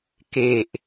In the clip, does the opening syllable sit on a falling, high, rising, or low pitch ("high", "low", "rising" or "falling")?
low